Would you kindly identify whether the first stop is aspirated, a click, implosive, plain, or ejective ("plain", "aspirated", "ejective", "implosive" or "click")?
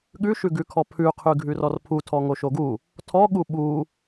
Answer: implosive